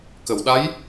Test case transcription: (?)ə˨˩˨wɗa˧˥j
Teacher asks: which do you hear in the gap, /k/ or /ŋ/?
k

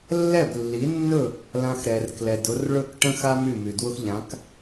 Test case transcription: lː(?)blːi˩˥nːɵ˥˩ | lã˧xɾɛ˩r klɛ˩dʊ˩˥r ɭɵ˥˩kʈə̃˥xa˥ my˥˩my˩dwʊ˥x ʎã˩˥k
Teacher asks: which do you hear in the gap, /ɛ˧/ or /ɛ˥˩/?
ɛ˥˩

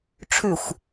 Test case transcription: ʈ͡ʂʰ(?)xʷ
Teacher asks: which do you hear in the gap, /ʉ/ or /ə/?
ʉ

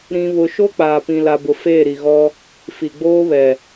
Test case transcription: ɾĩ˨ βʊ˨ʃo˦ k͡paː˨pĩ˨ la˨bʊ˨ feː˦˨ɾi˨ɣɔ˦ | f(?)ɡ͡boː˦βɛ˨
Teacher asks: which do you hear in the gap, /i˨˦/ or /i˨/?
i˨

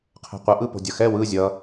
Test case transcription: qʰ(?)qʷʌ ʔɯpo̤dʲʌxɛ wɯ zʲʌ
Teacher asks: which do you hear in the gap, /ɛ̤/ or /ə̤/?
ɛ̤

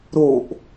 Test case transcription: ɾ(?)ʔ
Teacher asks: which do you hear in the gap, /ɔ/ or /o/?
o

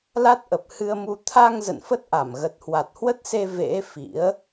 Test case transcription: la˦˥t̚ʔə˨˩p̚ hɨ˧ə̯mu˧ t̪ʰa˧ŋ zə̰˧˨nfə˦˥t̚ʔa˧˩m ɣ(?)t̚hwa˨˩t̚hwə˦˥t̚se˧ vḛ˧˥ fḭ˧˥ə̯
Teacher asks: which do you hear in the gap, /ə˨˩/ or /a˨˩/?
ə˨˩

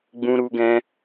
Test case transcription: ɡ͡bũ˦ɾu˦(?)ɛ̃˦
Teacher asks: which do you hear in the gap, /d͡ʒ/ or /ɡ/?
ɡ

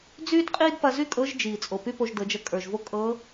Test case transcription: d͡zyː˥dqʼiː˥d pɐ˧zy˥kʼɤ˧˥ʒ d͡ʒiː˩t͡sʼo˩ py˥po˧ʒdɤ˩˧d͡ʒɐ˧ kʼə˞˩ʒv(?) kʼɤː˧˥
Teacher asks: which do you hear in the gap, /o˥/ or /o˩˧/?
o˥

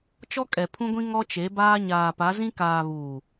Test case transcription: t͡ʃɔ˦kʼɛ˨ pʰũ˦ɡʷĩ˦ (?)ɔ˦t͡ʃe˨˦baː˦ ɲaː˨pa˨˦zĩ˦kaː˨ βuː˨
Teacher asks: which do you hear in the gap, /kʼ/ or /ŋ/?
ŋ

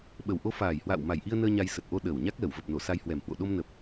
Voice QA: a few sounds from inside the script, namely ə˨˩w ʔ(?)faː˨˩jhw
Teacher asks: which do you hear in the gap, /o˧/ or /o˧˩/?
o˧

